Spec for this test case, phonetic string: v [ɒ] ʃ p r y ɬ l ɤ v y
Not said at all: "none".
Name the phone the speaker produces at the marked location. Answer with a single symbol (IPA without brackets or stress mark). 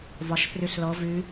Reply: ɒ